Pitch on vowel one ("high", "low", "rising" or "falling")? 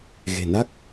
low